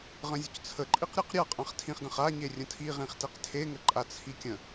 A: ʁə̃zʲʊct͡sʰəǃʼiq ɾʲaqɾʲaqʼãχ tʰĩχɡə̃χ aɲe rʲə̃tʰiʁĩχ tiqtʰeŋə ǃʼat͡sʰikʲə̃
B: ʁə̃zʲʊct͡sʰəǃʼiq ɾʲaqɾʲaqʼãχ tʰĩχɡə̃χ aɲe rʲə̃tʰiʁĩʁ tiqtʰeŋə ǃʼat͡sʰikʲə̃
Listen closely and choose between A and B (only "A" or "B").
A